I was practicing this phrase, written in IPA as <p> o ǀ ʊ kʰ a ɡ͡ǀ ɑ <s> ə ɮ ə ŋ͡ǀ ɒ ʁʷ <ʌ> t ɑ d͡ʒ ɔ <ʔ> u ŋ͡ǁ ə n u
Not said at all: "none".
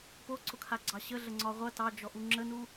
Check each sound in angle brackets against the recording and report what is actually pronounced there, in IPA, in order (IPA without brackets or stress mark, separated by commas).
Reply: p, ɕ, ʌ, ʔ